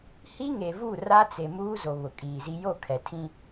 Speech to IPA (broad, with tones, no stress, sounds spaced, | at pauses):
h i˦ ŋ e˨ v u˦˨ r a˦ t͡s e˨ m uː˦ z o˨ β ʊ˨ kʼ iː˨ z i˦ j o˦˨ kʰ ɛ˨ tʰ ĩ˦